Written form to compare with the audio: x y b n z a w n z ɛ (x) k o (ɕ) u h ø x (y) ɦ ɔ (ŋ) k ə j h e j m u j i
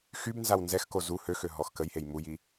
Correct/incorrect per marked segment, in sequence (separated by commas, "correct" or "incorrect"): correct, incorrect, incorrect, incorrect